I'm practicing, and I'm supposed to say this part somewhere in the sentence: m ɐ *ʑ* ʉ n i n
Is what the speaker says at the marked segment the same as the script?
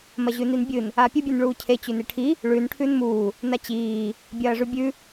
yes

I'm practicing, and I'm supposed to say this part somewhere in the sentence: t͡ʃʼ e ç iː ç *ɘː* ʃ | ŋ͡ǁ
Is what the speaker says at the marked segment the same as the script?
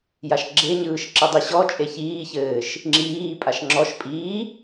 yes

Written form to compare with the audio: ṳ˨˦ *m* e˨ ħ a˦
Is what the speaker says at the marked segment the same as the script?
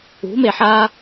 yes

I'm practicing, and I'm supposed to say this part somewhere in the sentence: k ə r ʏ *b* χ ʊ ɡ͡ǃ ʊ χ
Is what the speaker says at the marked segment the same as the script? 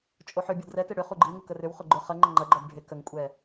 no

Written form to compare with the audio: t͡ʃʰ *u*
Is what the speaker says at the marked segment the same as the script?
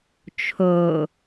no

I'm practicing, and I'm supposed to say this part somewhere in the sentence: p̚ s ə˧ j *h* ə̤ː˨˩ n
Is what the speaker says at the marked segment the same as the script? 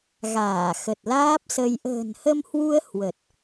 no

